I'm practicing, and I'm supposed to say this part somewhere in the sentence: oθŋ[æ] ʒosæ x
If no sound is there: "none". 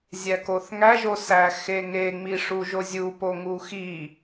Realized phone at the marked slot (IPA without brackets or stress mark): æ